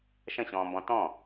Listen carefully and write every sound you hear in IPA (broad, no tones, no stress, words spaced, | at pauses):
ʃə̃ɕɔ̃ːmbɔ̃ tɔ̃